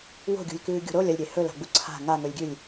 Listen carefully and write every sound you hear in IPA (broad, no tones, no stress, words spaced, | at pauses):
wo̤ɡʲṳlʲkʉː ɡʲo̤ɾolʲ ɐlʲɾʲe hɵla̤ɡ͡bu ǀʰa̤ ŋaŋɵlʲɡʲʉlʲ